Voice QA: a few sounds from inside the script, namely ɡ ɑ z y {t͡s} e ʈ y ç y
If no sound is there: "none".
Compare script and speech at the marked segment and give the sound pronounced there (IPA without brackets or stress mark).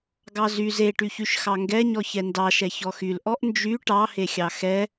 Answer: z